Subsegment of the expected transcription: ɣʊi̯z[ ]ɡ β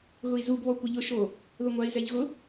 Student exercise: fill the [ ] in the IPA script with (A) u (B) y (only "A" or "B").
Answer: A